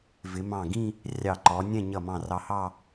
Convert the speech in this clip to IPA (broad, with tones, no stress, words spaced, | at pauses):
vɪ˩˧ mɑ̃˧˩ɡĩ˥˧ | rʲɑ˧˩ǃɔ˩˧nʲɛ̃˥˧ ɲʌ˧˩mɑ̃˧˩ rɑ˧hɑ˥˧